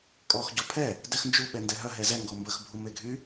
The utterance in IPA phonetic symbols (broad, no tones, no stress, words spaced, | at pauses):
kʼɔx ɟɔpʰɛ | dɛxnd͡ʒu ɓɛndɛɦœ ɦɛzɛ ŋɡɔmbəx bʱumeɡʱy